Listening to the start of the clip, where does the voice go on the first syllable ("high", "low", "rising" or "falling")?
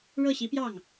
falling